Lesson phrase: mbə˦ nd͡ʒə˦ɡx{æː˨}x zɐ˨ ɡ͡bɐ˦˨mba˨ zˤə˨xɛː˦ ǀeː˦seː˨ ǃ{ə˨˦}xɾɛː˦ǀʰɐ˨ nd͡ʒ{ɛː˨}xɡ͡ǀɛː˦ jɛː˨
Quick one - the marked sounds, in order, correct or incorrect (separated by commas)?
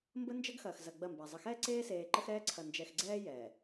incorrect, incorrect, incorrect